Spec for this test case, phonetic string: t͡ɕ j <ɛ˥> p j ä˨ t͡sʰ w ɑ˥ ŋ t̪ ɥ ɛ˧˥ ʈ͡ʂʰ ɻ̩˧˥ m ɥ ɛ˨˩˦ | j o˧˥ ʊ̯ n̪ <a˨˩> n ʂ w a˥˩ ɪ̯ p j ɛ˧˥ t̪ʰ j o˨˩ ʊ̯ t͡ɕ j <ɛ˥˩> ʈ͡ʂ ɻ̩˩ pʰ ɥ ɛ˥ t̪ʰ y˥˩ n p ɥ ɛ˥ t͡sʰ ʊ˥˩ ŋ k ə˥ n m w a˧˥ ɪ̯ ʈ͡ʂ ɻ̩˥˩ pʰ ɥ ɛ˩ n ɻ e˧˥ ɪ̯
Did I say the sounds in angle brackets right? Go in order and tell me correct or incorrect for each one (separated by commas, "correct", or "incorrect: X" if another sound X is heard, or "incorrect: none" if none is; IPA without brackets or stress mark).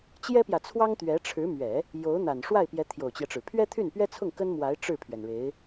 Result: correct, correct, incorrect: ɛ˦